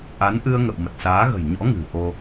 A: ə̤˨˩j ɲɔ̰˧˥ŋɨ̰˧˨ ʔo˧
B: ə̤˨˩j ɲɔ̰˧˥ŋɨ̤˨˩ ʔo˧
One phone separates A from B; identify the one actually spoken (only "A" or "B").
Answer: B